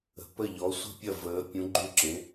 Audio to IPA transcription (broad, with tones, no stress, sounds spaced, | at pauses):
ə̤˨˥ p ə˥˨ ʎ ɔ˨˥ sʷ ə̤˥˨ pʲ ɐ˥˨ v əː˨˥ pʲ ũ˨˥ ɡ͡ǃ ʉ˥˨ ǁ ẽ˨˥